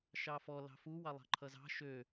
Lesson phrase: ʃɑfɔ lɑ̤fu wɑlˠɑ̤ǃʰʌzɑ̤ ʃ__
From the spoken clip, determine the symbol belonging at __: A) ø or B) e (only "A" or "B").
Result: A